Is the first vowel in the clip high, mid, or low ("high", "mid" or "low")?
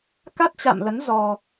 low